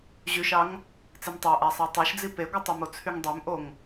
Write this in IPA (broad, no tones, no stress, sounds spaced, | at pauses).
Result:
ʑ y ʃ ɑ ŋ | t͡s e m tˤ æ ʔ æ sˤ æ tˤ æ ʃ d͡z i p e ɡʷ ɯ tˤ y m o t͡sʰ y ŋ dˤ ø m ʔ o ŋ